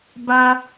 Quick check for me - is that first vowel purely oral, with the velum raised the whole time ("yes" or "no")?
yes